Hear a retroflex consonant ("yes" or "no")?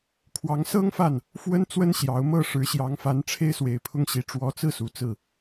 yes